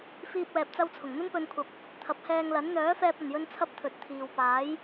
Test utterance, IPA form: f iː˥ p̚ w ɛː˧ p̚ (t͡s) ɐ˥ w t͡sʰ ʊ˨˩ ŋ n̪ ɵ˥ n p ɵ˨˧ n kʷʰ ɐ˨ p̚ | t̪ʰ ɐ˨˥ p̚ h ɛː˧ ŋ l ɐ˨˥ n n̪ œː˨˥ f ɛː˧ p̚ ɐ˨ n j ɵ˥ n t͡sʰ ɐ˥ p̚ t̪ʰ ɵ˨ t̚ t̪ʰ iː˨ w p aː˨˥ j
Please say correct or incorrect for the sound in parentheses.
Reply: correct